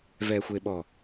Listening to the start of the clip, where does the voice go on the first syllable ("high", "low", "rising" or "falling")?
low